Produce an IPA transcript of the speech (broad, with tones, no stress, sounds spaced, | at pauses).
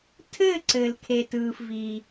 tʰ ɘː˥˧ ǀ ɘ˨ l kʰ e˨ t ɯː˨ f v iː˨